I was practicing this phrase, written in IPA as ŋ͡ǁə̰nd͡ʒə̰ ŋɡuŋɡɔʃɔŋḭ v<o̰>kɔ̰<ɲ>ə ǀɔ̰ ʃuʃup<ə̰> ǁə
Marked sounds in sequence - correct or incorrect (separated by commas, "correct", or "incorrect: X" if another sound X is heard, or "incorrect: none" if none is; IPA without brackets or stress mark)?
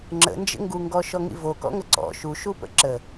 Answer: incorrect: o, incorrect: ŋ, correct